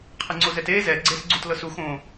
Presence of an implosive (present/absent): absent